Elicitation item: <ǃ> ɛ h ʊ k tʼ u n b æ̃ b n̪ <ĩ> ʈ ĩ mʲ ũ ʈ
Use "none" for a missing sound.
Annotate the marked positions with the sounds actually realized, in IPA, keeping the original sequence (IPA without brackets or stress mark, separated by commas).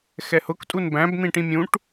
x, ĩ